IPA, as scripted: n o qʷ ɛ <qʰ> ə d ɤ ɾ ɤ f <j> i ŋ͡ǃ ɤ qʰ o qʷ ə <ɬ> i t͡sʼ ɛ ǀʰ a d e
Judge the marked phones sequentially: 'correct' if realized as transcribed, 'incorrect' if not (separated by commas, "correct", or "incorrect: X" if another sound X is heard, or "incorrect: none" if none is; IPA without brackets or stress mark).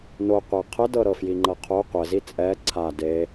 correct, correct, incorrect: z